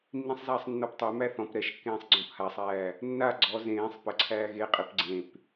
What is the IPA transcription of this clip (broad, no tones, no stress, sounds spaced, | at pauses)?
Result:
nː ĩ sˤ z aː sˤ nː ɔ p tˤ e m æ θ ɔ̃ p ɾ ɛ ʃ kː ẽː sˤ ɡ͡ǀ ɔ̃ p h a sˤ æː | nː a ɡ͡ǀ ɔ z ẽː sˤ p ə ǀʰ æː ɣ e qʼ i p ɡ͡ǀ ẽ p